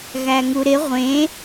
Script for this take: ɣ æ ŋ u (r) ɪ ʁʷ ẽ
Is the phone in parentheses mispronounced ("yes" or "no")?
yes